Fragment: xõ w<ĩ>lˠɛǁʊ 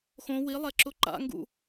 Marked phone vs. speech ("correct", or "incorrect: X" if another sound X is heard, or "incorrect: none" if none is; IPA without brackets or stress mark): incorrect: i